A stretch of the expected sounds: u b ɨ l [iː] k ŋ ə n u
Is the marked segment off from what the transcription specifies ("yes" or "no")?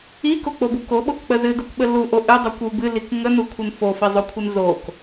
yes